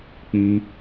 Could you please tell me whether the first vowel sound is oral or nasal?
nasal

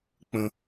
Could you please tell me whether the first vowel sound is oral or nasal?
nasal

